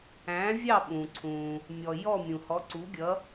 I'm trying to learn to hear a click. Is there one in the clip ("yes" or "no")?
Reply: yes